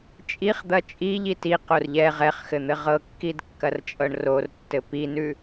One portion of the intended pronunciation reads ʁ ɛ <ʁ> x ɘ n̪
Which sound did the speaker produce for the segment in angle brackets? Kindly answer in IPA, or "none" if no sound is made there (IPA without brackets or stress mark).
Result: χ